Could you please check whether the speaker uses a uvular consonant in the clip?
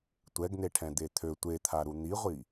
yes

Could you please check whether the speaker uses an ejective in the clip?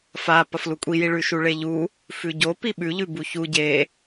yes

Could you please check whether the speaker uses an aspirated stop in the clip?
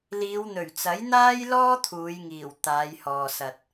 yes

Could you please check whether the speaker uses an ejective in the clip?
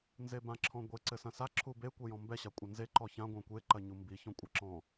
yes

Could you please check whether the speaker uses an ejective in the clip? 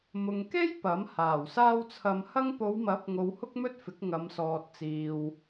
no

